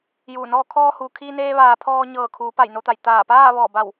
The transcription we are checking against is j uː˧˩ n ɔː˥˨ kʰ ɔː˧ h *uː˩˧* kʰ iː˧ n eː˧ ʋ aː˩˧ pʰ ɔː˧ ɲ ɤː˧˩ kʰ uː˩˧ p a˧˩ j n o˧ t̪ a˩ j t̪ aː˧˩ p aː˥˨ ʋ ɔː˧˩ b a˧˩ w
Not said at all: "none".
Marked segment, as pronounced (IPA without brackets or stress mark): uː˩